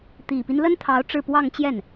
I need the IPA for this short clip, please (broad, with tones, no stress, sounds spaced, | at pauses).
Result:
t̪ i˨˩ p i˦ n l ə˥ n t̪ʰ ɑ˧˥ ʊ̯ ʈ͡ʂ ɻ̩˥˧ p w ɑ˥˧ ŋ t͡ɕ j ɛ˥˩ n